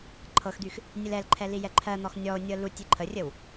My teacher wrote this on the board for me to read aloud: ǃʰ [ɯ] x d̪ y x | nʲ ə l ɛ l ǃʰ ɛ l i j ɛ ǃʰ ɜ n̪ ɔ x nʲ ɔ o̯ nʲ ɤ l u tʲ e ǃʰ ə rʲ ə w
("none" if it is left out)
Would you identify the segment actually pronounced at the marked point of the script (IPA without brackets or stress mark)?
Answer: ɤ